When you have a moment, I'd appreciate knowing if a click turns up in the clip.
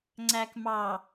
yes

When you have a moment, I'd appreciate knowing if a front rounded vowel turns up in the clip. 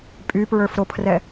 yes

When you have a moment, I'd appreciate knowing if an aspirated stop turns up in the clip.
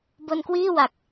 no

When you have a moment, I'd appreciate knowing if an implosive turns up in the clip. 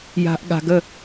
yes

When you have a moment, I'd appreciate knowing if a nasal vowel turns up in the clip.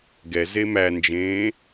yes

